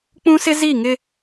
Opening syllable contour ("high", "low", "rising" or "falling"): high